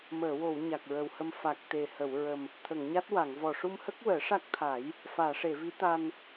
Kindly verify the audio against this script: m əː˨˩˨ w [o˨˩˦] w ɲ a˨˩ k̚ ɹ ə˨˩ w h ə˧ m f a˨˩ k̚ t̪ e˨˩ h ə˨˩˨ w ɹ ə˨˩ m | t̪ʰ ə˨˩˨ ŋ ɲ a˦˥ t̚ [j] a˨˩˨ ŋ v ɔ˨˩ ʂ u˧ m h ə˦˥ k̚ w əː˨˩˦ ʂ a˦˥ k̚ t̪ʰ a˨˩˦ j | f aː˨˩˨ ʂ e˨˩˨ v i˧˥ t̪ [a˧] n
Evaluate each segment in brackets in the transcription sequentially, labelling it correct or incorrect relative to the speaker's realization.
incorrect: o˨˩˨, incorrect: w, correct

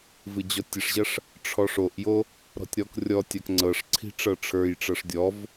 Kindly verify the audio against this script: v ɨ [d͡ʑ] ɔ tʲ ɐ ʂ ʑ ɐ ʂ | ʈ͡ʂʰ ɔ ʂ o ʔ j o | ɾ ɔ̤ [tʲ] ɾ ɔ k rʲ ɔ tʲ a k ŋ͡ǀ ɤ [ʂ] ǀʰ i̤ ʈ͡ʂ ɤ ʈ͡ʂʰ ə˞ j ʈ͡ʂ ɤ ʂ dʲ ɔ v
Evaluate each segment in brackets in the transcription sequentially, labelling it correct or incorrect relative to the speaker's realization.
correct, correct, correct

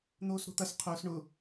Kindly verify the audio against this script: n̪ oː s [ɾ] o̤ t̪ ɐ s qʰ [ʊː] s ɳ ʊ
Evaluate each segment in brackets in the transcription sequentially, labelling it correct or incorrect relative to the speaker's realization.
correct, correct

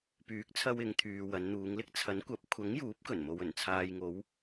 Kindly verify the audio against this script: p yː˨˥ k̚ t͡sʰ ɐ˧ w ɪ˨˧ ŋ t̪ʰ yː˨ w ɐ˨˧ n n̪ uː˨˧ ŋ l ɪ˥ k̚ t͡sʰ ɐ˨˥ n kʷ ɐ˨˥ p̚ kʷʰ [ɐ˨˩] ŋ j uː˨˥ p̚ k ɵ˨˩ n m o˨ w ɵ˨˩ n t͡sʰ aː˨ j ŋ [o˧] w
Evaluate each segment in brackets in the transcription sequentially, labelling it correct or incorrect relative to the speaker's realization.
incorrect: ɐ˨˥, incorrect: o˨˧

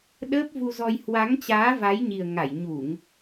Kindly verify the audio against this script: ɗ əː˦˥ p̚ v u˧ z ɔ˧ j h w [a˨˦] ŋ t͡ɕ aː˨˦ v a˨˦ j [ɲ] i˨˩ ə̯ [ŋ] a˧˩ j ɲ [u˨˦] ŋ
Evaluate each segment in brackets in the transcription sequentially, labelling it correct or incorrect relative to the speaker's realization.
correct, correct, correct, incorrect: u˧˩˨

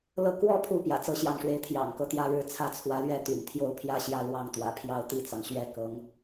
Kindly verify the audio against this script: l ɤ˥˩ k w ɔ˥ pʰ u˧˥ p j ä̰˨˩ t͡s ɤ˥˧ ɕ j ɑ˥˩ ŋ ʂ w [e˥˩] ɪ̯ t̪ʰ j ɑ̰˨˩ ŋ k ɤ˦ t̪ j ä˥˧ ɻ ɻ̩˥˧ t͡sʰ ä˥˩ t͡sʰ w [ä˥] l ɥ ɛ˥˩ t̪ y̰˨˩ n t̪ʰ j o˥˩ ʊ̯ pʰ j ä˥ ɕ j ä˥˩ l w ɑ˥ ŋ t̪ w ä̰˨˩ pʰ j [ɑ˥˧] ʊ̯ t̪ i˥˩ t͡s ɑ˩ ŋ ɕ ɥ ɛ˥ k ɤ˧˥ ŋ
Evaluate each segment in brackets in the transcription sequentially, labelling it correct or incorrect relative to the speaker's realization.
incorrect: e˧˥, incorrect: ä˧˥, correct

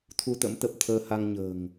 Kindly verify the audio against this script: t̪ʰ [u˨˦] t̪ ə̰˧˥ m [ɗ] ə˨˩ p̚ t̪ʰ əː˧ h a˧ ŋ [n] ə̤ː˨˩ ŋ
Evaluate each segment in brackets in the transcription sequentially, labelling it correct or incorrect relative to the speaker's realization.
incorrect: u˧, incorrect: t̪, incorrect: ɲ

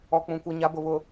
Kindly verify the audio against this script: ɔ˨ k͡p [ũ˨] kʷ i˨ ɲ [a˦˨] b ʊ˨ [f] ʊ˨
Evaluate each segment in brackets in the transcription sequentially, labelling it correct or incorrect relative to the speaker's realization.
correct, incorrect: a˨˦, incorrect: β

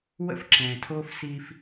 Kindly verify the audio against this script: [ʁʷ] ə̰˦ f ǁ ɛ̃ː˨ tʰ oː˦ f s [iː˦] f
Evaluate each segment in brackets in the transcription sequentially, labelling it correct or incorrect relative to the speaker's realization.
incorrect: w, correct

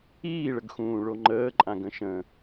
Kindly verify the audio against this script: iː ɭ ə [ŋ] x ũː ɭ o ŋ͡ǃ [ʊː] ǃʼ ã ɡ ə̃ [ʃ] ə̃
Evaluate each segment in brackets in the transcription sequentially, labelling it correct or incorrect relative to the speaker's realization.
incorrect: ɡ, incorrect: əː, correct

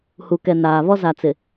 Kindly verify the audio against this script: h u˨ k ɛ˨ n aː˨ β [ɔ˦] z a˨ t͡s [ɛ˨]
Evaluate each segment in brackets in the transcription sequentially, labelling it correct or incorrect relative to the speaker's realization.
correct, incorrect: ɪ˨

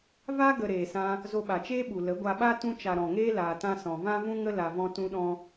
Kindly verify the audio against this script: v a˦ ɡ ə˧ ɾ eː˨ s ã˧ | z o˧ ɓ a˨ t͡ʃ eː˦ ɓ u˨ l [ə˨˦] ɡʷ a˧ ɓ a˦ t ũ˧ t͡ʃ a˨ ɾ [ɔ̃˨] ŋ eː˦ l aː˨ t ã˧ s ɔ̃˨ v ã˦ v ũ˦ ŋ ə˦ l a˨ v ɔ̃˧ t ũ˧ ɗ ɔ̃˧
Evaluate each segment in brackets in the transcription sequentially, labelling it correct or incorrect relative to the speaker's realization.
correct, correct

